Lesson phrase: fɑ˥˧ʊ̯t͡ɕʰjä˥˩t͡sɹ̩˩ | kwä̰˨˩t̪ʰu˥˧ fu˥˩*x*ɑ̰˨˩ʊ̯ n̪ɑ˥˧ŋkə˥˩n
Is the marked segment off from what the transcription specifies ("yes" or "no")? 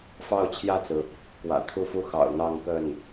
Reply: no